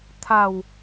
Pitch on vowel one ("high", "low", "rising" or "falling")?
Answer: low